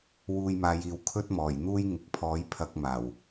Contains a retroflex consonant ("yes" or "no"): no